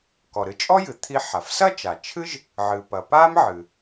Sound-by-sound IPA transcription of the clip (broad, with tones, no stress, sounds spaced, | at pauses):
k ɔ˩ ɾ ɨ˧ t͡ʃʼ ɔ˥ j ɨ˩ t̪ʰ i˧ ħ a˩ f s ɐ˥ t͡ʃ a˩ t͡ʃʰ ɨ˥ ʒ | ʕ ɨ˩ p ɐ˩ p a˥ m ʕ ɨ˩